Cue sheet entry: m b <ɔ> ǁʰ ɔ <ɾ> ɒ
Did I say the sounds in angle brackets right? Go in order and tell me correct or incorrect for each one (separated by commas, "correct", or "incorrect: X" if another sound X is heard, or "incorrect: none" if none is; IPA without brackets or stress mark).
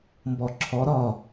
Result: correct, correct